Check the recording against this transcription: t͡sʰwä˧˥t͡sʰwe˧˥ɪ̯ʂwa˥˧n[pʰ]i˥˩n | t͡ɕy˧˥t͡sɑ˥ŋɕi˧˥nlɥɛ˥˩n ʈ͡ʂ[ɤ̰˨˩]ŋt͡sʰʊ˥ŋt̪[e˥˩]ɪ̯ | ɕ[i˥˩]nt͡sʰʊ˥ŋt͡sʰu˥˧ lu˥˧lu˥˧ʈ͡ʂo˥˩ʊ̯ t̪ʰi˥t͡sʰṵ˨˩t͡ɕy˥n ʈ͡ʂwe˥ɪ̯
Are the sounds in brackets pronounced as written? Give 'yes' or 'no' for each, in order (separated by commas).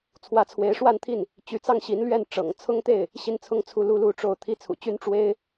no, yes, yes, yes